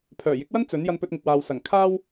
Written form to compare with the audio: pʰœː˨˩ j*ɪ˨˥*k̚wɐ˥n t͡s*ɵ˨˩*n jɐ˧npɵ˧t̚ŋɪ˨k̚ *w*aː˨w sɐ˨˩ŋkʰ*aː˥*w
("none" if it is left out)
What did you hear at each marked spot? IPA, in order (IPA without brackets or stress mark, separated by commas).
ɪ˨˥, ɵ˨˥, w, aː˥